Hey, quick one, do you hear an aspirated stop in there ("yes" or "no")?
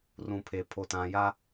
yes